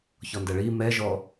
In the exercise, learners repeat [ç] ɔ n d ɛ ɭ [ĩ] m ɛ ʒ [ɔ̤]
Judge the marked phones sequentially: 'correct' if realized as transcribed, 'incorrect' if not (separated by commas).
correct, incorrect, incorrect